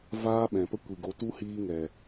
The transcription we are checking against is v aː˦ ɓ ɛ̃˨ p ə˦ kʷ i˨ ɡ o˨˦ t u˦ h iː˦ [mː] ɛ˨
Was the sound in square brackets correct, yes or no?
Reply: no